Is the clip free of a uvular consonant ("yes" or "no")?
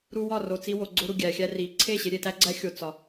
yes